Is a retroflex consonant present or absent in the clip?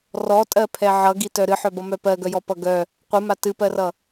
absent